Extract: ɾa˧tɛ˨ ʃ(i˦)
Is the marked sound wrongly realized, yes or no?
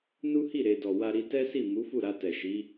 yes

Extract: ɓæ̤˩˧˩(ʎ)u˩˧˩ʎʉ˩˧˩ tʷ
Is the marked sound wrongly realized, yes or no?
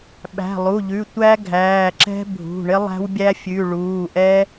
yes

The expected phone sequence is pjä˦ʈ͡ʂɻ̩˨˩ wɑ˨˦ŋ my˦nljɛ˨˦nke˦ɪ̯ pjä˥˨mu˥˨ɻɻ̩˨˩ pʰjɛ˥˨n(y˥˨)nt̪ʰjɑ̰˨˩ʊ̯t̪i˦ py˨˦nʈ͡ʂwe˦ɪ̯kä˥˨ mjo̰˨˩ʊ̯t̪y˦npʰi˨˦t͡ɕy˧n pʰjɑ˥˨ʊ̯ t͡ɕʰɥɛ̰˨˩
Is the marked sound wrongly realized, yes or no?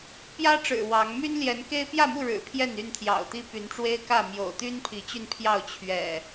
no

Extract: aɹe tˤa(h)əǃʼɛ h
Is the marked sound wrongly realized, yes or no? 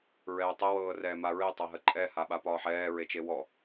yes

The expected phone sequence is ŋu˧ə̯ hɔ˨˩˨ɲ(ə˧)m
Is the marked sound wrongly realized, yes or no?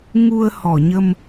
no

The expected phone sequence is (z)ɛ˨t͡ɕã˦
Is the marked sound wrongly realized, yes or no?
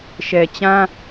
yes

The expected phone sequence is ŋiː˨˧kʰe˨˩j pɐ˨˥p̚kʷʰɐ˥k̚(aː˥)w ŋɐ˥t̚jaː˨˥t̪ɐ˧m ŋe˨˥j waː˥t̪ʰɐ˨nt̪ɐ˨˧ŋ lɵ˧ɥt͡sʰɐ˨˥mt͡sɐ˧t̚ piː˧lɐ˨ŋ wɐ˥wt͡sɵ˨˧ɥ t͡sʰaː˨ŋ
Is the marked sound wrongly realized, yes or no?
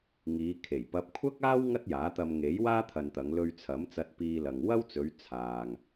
no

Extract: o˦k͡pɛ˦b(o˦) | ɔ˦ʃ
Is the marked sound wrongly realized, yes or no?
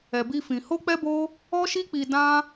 no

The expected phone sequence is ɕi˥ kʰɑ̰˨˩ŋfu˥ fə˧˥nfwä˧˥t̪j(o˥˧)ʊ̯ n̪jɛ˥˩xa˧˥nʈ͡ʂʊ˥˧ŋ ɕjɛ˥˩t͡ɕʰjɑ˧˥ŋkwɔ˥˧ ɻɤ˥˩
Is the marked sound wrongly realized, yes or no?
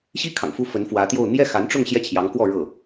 no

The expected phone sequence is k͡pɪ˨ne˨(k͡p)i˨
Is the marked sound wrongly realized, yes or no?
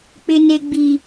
yes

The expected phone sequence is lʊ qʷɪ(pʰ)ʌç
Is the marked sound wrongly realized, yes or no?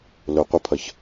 no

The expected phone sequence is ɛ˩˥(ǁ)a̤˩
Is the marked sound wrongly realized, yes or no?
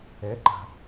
yes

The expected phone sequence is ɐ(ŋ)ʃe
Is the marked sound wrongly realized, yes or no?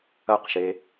yes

